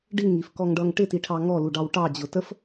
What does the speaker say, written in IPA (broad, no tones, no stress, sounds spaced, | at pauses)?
ɖ i ŋ i f k ɔ ŋ ɖ ʌ ŋ ʈ ɪ t i ʈʰ ɑ ŋ ɔ l u ɖ ɑ w ʈ ɑ d͡ʑ ʊ t ə f